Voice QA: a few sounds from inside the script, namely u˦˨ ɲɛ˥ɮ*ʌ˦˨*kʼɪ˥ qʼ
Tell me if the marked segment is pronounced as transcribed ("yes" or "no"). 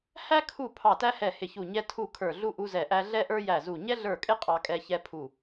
no